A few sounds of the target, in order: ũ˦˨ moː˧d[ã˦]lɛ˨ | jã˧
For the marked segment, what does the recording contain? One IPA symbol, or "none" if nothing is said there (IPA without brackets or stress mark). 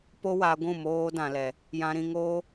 ã˨